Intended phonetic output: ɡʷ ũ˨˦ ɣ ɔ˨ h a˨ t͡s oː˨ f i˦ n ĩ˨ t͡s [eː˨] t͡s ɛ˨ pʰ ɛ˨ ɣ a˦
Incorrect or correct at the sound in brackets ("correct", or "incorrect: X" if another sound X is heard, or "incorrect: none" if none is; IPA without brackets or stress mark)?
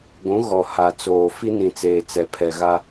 correct